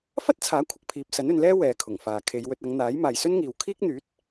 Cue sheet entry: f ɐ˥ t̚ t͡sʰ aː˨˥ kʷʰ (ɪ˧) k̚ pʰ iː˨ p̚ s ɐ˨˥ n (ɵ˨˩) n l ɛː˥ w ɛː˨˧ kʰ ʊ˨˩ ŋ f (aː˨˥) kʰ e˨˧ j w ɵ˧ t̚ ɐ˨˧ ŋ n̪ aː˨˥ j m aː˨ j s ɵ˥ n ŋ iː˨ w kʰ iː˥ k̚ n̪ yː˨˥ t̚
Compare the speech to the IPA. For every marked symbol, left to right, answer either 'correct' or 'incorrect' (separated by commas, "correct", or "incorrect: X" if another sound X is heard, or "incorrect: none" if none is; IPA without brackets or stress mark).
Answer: correct, incorrect: ɵ˨˧, incorrect: aː˨